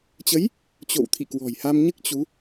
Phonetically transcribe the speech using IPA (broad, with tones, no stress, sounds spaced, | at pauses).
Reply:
t͡ɕ ə˨˦ j | t͡ɕ o̰˧˨ w t̪ʰ ḭ˧˨ k w ɔ̤˨˩ j h a˧ m ɲ ɨ˦˥ k̚ t͡ɕ u˨˦